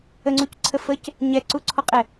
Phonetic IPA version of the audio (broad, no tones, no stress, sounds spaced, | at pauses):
ə ŋ͡ǀ u c ǀʰ ə f ə c | ɲ ɛ ǀ u ǀʰ ɔ qʼ ɛ